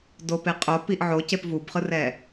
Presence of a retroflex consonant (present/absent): absent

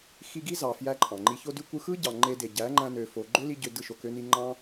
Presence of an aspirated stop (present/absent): absent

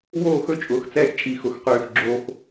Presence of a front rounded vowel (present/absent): present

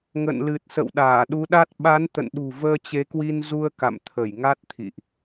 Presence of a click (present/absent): absent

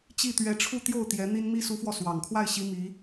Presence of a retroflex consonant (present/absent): present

